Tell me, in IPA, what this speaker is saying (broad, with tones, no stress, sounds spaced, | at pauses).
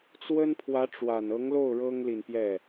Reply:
t͡s w ə˥ n pʰ w ä˧˥ ʈ͡ʂ w a˨˩ n ɤ˧˥ ŋ l o˥˩ ʊ̯ ɻ ɤ˥ ŋ l i˨ n p j ɛ˥˩